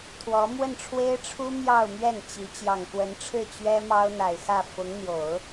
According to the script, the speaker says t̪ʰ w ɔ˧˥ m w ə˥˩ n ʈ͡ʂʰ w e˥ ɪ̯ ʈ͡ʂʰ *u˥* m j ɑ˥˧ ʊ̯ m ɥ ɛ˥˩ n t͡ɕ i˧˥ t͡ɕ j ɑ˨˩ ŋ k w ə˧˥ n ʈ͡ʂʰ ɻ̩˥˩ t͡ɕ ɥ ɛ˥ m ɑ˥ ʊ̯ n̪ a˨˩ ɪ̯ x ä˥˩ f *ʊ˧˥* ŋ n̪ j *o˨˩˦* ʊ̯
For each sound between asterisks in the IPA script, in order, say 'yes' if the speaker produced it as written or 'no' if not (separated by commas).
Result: yes, yes, yes